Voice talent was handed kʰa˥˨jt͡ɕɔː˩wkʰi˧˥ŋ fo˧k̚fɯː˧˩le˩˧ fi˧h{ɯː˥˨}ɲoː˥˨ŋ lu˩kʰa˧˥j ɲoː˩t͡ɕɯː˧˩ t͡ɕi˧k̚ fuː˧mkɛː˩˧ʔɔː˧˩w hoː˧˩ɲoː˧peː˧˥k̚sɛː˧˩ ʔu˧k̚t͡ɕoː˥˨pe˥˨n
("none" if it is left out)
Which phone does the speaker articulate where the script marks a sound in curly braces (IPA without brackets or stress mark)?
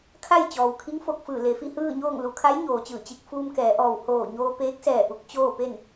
ɯː˥˨